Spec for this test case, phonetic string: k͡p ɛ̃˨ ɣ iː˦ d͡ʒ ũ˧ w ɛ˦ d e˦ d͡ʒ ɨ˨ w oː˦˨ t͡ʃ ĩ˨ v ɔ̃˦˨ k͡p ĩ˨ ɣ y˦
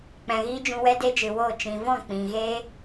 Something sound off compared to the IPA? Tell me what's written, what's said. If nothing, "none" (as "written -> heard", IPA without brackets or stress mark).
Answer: y˦ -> e˦